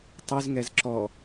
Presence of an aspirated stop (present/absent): absent